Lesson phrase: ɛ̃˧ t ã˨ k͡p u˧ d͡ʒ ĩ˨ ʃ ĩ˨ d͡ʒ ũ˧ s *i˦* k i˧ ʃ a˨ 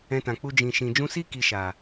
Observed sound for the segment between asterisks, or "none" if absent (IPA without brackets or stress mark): i˦